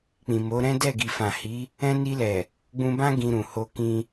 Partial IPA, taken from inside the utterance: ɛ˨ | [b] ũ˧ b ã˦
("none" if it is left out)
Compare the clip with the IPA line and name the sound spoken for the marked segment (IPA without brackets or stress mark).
ɡ͡b